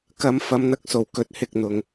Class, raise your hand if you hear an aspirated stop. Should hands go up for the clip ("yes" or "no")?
no